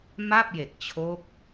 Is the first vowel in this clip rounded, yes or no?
no